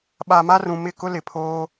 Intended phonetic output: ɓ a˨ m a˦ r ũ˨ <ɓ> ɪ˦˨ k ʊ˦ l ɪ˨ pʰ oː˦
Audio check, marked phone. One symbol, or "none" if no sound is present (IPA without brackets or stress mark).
m